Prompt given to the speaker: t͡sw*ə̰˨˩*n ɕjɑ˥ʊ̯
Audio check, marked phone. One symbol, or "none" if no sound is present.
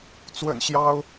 ə̰˨˩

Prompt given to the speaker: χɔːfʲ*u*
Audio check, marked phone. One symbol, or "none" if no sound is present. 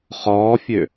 ø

